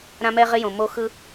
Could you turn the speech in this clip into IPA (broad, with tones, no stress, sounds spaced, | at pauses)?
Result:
ɾ ã˦ m ɛ˦ ʁ ɪ˦ j õ˨ m o˦ x ɯ˦